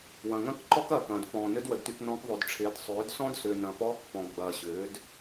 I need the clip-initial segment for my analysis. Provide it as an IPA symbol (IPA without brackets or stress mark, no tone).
w